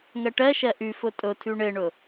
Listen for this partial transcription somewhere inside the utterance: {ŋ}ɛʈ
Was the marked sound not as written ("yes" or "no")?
no